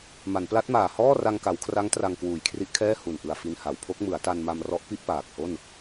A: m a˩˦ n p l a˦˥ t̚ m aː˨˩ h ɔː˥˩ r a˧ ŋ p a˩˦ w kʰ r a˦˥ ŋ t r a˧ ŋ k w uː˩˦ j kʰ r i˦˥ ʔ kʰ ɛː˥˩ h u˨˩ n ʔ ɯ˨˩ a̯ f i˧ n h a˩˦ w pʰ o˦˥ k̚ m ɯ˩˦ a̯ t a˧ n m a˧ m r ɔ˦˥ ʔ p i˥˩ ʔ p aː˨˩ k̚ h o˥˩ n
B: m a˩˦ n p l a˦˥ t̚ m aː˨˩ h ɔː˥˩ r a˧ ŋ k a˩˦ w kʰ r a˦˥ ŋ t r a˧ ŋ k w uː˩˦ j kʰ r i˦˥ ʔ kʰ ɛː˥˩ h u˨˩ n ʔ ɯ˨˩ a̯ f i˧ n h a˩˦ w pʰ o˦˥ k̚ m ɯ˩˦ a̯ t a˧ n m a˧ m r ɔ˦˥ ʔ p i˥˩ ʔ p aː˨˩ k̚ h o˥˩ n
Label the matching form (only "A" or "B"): B